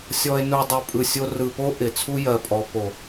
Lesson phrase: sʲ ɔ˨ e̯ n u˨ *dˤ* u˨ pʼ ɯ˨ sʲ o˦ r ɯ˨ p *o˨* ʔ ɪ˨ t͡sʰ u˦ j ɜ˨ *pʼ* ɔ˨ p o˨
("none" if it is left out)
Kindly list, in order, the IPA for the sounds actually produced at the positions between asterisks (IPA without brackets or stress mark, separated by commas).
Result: dˤ, o˦, pʼ